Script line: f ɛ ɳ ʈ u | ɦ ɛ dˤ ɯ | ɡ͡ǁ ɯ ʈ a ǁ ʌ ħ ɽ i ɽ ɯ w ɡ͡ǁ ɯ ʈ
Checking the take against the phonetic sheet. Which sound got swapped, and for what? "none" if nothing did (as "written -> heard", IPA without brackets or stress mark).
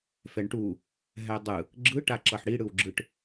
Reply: none